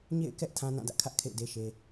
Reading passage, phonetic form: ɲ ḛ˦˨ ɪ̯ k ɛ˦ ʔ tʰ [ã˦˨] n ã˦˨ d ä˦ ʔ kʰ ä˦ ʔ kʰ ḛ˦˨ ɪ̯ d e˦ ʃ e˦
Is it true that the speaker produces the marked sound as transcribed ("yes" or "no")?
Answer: no